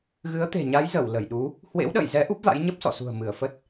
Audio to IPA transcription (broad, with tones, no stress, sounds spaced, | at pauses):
ɣ ɨ˨˦ ə̯ t̪ e̤˨˩ ɲ a˨˦ j z ə˧˩ w l ə˧˩ j ɗ u˨˦ | h w ḛ˧˥ w ɗ ə̰ː˧˨ j z ɛ˨˦ ʔ u˦˥ p̚ v a̰˧˥ j ɲ ə˦˥ p̚ s ɔ̰˧˨ s ṳ˨˩ ə̯ m ɨ˧˩ ə̯ f ə˦˥ t̚